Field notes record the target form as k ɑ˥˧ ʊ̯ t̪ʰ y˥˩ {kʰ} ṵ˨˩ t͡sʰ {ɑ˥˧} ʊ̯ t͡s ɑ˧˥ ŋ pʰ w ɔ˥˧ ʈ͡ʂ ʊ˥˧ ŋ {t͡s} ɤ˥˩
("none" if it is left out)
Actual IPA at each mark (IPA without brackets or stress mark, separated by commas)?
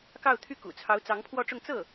k, ɑ˧˥, t͡s